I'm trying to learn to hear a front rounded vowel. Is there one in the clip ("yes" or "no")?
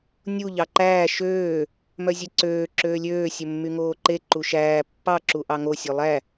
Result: yes